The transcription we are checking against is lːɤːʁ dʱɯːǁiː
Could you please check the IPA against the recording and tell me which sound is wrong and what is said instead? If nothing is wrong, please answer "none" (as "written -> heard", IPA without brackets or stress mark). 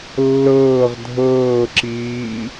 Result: ɯː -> ɤː